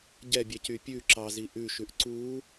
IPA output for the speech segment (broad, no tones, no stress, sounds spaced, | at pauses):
ɟ ɛ bʲ ɛ c y pʲ ʉ ǁ ɑ z i ʔ ʉ ʃ ʉ ʔ ǀ u